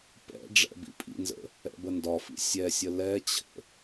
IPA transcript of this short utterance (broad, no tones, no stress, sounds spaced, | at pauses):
p ɛ̰ ɖ͡ʐ ɛ̰ b ḭ pʼ ḭ n z ə̰ | ɛ̰ b ə n d ɒ f ḭ sʲ ɛ sʲ ə l ɛ t͡ɕʰ ə̰